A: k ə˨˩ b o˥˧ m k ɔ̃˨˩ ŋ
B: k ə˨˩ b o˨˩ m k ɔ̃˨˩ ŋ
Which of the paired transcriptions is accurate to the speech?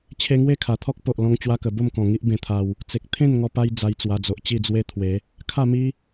A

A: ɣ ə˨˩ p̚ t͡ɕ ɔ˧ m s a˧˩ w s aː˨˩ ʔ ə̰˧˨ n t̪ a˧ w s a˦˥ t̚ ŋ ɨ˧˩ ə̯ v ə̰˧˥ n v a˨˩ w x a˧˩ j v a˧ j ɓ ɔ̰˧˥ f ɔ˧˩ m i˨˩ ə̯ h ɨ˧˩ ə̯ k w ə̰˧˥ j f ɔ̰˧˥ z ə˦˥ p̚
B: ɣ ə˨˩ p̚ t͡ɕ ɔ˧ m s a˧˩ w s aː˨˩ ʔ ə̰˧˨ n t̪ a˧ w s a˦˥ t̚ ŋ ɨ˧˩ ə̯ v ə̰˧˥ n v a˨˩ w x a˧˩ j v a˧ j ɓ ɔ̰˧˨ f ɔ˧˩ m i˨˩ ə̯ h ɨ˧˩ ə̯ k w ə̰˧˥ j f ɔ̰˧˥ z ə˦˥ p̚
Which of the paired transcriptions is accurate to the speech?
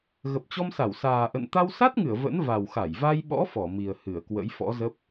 A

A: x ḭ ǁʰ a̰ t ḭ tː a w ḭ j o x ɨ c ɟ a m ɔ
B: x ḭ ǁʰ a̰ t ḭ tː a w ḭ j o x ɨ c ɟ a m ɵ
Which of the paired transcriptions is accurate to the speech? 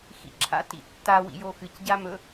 B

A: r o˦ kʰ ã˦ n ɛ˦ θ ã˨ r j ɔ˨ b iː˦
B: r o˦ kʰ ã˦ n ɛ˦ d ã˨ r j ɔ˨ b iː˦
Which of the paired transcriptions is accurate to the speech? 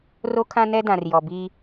B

